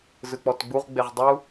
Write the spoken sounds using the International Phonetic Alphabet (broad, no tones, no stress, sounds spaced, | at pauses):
z ɯ k͡p ɔ t ɡ͡b u ʁ ɡ͡b e ʁ dˤ u